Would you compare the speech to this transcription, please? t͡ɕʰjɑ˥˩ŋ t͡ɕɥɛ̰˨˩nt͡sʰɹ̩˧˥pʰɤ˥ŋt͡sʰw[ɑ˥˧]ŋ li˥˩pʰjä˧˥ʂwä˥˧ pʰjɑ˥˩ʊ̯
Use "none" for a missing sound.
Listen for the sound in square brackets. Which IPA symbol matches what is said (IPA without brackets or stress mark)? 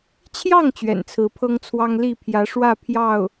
ɑ˥